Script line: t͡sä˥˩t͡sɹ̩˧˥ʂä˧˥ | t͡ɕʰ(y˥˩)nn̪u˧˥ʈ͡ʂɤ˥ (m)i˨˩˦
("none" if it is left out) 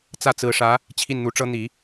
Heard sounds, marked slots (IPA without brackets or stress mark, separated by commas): i˥˩, n̪